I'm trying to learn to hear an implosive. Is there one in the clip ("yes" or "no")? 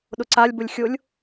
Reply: yes